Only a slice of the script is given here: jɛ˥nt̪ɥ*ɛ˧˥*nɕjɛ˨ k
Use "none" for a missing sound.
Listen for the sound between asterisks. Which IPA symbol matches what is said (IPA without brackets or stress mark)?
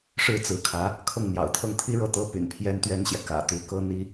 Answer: ɛ˥